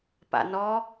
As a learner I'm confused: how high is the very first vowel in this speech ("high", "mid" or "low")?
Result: low